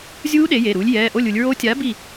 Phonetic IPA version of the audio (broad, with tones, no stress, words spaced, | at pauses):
zʲuː˦˥ ɗe˨˥je˩˧˩ɾuː˨˥lʲ jɛː˩˧˩ʔo˥˨lʲu˩˧lʲɹo˦˥ tʲa˨˥ bi˥˨